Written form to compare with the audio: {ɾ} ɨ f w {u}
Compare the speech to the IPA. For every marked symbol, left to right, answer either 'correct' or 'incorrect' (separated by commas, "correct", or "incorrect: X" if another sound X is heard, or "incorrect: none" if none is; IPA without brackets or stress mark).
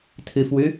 incorrect: tʰ, incorrect: ʉ